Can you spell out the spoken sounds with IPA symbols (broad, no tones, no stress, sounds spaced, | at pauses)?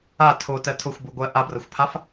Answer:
a tʰ o t ɜ tʰ ʊ xʷ b u ɡʷ ɜ ʔ a b r ɐ xʷ pʰ a f